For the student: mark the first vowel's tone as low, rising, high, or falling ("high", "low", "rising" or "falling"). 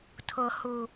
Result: high